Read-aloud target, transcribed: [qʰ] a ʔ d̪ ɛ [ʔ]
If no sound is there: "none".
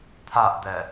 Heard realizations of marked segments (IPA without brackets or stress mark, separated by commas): t̪ʰ, none